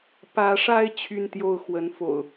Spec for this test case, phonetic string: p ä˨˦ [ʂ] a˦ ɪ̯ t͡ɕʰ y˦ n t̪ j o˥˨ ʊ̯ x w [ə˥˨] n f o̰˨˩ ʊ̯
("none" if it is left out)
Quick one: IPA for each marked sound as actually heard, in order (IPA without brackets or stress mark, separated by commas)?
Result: ʂ, ə˨˦